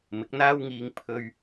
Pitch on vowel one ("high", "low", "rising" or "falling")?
rising